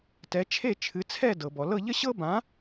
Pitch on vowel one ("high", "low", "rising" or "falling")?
rising